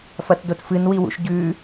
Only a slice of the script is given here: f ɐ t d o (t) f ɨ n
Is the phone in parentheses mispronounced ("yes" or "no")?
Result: no